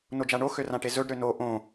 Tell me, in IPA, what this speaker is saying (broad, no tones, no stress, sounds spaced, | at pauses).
n o d͡ʒ a ɳ o x ø r ã ʈ e z ɵ ɖ ɾ ø n o ʔ õ